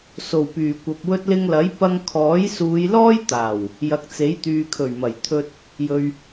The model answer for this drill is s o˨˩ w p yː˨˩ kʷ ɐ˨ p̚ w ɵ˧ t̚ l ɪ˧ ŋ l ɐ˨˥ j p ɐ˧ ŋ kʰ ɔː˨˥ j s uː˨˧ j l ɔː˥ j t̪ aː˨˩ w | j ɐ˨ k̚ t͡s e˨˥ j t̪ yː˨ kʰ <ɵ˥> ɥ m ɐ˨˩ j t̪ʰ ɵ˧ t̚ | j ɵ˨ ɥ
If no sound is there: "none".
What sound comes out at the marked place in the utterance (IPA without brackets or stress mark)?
ɵ˨˩